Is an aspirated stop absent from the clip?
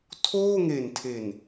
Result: no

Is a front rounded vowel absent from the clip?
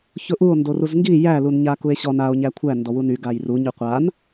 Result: no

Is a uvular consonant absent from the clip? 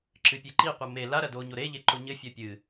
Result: no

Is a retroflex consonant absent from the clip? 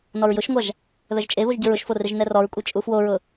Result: yes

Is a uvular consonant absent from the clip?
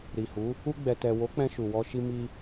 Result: yes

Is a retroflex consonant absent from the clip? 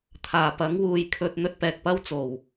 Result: yes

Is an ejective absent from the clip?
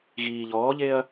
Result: yes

